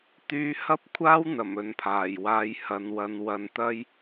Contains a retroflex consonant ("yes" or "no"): no